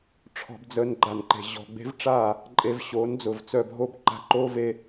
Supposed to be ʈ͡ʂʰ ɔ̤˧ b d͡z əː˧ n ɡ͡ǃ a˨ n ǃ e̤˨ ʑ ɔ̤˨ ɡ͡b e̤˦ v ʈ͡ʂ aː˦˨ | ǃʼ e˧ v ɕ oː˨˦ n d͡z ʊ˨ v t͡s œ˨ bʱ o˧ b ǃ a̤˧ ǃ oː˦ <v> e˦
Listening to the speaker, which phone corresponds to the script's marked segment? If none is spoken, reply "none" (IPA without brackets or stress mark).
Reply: v